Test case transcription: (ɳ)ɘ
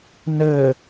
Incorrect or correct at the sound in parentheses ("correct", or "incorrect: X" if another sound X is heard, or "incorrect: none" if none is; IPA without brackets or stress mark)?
incorrect: n